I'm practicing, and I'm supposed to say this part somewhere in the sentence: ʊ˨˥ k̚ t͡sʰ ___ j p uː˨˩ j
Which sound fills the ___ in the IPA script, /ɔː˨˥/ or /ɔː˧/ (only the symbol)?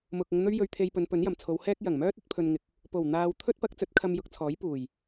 ɔː˨˥